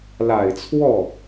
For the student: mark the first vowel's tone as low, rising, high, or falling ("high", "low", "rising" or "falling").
low